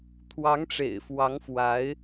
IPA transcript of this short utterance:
t̪ʰ w ɑ˧˥ ŋ ʈ͡ʂ ḛ˨˩ ɪ̯ f w ɑ˧˥ ŋ f w a˧˥ ɪ̯

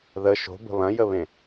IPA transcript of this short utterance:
ð ə ʃ o̤ b ə̤ β ɐ̃ j ə β ẽ

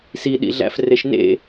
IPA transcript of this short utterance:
s i ɗ ḭ ɮ æ̰ f r e ʃ n ḛ

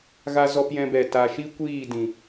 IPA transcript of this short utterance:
ɣ a˧ z ɔ˧ p j ɛ̃˧ b ɛ˨ t a˨ ʃ i˦ kʷ iː˦˨ d ĩ˨

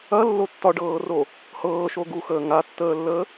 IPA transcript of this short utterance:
ɐ lː o tː ɒ ɖ ɤː r o | h ɤː ʃ o ɡ u x əː ŋ a tː əː lː əː

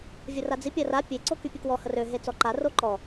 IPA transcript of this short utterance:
vʲ ə r a d͡z i pʲ a r a pʲ e ǀ o k y pʲ ə k w ɔ h ə r ø ɦ e t͡s ɔ ǃ a r o ǃ ɔ

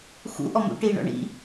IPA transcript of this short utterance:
x ṵ ʔ ɔ m ṵ ʈ iː ɳ ɔ̰ ɳ ḭ

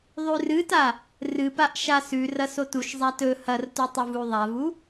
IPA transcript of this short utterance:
ðˤ ʉ r ɨ t a | r ɨ p a ʔ ʃ a s ʉ r ɐ s o t u ʃ zˤ a t ɵ h ɐ r t u tˤ u v u ðˤ a v u

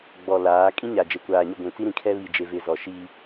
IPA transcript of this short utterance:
ɡ͡b ɔ˨ l aː˨˦ kʼ ĩ˦ ɲ a˨ d͡ʒ e˨ kʷ aː˨ ɲ ʊ˦˨ ɡʷ ĩ˨ t͡s i˦ ɾ ĩ˨ kʰ ɛ˦ β i˨ d͡ʒ e˨ v ɪ˨ z ɔ˨ ʃ i˦

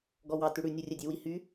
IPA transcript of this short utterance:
ɡ ɔ w ɑ t ʉ ɽ ʉ nʲ u rʲ ɛ dʲ e w i h y

